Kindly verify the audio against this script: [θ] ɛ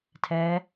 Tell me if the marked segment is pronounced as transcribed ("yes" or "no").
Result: no